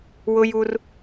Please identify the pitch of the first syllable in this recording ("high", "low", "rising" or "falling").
high